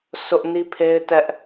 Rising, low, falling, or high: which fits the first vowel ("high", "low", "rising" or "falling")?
high